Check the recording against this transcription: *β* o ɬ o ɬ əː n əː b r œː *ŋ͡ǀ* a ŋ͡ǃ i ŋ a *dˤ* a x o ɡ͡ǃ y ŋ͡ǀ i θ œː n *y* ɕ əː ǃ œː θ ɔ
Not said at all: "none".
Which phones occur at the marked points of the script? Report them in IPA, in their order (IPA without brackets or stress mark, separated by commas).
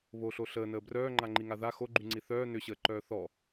β, ŋ͡ǃ, ð, ʏ